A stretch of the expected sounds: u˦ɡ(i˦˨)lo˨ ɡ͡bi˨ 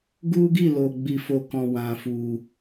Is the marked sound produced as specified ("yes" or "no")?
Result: yes